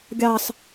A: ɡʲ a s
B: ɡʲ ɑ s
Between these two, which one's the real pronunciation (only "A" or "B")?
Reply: B